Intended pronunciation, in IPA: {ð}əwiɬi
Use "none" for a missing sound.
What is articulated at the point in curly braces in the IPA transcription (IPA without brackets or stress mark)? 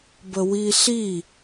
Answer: b